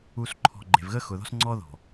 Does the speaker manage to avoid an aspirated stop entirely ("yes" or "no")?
no